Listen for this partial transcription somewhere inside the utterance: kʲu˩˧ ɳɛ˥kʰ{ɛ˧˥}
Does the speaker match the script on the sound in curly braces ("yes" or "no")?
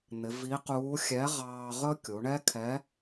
yes